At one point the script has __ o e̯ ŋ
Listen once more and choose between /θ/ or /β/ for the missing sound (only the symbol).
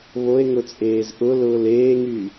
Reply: β